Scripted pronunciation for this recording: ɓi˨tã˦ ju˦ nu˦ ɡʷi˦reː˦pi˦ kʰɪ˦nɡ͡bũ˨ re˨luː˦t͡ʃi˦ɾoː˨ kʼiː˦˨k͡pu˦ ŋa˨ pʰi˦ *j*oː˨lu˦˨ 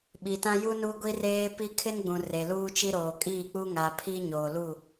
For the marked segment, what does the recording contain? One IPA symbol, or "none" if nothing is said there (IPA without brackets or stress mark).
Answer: ɲ